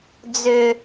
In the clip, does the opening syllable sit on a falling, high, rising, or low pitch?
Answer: high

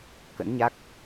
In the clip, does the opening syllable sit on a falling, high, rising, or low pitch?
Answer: rising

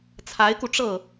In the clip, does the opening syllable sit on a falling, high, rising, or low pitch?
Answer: rising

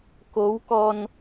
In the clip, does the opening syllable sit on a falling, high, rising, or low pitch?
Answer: rising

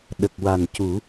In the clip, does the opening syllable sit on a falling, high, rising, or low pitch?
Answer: low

